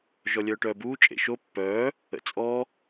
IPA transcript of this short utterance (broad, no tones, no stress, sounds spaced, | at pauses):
ʒ ɔ lʲ œː ʈ œː b uː t͡ʃʼ ḛ ʃ o pː œː | ə̰ t͡sʼ ɔ